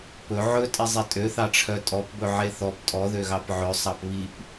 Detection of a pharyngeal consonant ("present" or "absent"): present